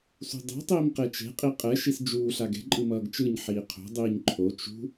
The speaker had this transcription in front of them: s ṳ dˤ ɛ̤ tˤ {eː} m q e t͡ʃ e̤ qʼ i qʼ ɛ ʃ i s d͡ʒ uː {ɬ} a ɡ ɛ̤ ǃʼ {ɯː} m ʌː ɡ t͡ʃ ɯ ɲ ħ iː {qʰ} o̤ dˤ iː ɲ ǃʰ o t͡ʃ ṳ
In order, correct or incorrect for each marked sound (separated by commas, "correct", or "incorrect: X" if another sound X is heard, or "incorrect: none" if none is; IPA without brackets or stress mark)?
incorrect: iː, correct, incorrect: ɯ, correct